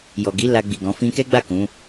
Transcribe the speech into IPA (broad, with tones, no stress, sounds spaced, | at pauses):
j ɔ˨ ɡ i˨˦ l a˧ ɡ͡b i˨ ɡ ɔ̃˨˦ f ĩ˧ k ɛ˦ ɡ͡b a˦˨ k ũ˨˦